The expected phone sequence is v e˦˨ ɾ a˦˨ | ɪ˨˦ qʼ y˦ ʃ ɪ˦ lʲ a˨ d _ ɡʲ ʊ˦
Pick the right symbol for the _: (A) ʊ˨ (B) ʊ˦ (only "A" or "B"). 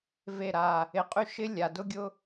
B